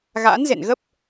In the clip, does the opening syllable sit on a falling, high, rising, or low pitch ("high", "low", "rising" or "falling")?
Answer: rising